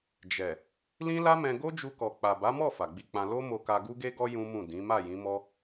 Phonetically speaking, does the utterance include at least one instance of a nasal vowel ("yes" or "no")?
yes